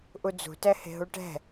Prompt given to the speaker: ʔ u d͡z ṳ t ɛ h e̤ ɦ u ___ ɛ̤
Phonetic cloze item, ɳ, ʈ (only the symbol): ʈ